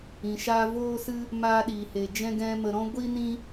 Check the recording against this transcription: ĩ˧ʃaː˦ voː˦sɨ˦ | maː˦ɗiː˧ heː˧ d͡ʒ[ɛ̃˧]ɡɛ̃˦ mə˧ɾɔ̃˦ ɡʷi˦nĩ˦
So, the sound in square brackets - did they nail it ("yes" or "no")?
no